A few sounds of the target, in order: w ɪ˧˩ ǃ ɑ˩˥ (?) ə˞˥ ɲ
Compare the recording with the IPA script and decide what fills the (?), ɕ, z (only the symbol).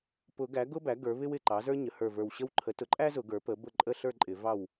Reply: z